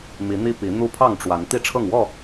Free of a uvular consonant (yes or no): yes